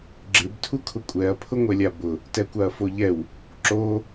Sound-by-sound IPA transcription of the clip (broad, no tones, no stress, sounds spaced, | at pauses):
ɡ͡ǁ ɪ b tʰ u kʰ ʊ kʷʼ ɛ ɐ̯ pʰ ʊ ŋʷ ɛ lʲ a b ʊ | t ɛ kʷ a ɐ̯ f o ʎ ɛ w | ǁ o